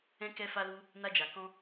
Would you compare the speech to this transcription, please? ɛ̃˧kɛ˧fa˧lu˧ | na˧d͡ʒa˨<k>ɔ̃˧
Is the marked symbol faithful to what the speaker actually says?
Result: yes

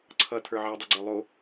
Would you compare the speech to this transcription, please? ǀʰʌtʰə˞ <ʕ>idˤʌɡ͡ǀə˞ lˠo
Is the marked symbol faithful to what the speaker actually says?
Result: yes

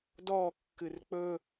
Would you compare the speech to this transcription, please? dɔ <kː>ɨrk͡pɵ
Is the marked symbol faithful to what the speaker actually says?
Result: yes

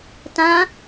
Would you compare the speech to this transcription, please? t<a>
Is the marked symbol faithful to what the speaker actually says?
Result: no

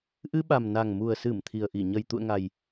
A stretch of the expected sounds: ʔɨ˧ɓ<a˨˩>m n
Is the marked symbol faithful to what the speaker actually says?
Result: yes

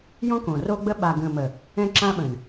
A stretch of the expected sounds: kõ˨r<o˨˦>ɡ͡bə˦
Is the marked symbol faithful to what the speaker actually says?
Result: no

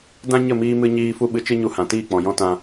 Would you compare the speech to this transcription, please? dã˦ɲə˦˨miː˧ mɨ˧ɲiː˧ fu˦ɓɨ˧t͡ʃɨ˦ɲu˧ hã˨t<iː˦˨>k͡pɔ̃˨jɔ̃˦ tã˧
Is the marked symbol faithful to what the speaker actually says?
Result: yes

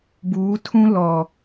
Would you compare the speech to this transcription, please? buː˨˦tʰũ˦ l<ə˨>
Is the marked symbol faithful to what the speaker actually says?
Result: no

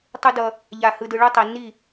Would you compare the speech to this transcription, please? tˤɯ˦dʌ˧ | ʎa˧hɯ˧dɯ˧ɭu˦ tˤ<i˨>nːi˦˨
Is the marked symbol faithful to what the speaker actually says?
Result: yes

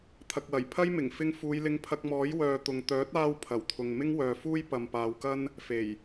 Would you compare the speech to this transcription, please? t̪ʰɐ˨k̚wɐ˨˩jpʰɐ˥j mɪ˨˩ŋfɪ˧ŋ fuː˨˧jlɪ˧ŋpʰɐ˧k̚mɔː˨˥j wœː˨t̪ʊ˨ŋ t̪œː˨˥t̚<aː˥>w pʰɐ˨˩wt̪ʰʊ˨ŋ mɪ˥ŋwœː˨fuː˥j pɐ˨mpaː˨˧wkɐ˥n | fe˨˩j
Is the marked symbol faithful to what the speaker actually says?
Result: no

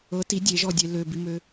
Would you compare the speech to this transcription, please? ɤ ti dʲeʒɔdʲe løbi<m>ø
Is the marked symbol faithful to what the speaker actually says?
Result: yes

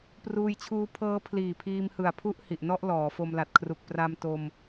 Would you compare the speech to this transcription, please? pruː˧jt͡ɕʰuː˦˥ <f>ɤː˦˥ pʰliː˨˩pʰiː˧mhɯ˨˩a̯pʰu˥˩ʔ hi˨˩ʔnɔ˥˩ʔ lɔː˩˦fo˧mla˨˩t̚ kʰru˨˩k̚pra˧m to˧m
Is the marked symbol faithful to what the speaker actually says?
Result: no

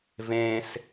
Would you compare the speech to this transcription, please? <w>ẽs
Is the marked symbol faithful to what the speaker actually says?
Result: no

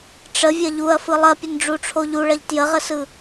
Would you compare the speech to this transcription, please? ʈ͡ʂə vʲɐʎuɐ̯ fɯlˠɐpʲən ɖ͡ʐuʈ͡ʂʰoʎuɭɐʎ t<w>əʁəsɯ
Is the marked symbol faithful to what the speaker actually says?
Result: no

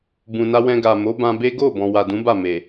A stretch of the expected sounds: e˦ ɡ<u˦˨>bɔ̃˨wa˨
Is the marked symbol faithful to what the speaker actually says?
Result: no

